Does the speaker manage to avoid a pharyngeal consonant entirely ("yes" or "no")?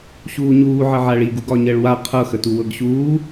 no